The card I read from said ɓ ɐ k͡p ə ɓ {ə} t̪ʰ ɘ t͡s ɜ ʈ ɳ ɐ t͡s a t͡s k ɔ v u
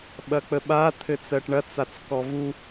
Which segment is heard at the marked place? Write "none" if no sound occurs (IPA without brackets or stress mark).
a